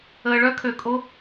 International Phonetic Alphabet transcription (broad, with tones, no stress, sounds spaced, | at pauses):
əː˧ ɭ œ˦ kʰ ø˧ kʼ o˦